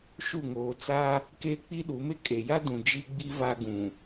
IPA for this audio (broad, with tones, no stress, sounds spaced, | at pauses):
ʃ u˦˨ ŋ oː˨ t͡s a˦ | k eː˦ k͡p i˦ ɗ u˨˦ m e˦ kʼ e˨ j a˦ d ũ˨ d͡ʒ i˦ ɡ͡b i˦ v a˦ ɡ ũ˨